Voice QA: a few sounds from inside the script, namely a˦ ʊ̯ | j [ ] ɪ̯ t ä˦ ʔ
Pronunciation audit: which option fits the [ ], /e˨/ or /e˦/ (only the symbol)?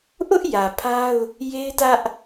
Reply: e˦